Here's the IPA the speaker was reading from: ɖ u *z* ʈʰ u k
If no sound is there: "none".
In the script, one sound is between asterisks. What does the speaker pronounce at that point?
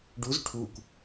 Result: z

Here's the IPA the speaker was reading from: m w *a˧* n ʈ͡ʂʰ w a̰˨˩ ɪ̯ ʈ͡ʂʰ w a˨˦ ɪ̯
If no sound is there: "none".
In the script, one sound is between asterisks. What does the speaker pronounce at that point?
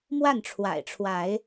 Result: a˥˨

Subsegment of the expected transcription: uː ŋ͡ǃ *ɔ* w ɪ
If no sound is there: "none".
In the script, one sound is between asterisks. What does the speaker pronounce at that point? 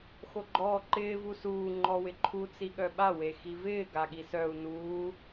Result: ɔ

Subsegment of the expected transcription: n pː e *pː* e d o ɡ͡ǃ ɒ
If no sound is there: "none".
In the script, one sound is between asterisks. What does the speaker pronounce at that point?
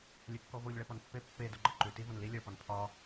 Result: pː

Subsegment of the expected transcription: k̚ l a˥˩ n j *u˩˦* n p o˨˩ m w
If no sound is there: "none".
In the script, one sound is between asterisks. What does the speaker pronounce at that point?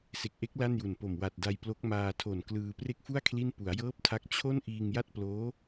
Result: u˨˩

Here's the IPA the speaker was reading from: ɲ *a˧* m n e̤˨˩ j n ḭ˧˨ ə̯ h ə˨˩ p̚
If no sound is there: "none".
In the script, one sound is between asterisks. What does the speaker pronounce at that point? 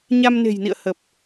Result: a˧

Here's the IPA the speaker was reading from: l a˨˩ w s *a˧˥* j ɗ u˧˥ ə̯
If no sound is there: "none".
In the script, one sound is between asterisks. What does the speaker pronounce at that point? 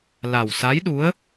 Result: a˧˥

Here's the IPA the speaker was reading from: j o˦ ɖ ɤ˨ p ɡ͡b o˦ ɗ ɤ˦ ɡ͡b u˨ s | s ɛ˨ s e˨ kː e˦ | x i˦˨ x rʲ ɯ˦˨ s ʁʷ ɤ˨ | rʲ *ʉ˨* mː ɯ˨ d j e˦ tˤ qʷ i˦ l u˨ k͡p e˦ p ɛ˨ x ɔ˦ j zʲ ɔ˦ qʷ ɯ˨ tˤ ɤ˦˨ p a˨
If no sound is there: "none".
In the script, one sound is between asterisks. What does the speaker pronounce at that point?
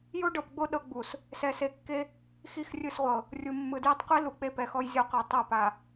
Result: u˨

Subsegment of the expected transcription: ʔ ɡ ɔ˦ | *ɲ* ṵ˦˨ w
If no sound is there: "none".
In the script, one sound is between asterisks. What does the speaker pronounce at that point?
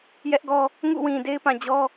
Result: ŋ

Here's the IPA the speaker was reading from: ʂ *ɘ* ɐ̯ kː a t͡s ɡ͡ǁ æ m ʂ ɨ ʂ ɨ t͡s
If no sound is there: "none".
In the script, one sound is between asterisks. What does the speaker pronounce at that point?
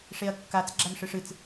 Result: e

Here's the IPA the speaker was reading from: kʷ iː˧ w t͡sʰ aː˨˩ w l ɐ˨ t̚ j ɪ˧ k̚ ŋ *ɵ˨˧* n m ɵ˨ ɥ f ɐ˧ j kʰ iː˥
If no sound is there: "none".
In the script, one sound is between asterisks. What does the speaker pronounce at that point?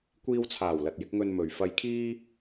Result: ɵ˧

